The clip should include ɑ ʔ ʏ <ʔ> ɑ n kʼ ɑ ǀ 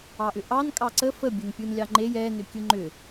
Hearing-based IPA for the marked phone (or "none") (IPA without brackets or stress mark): ʔ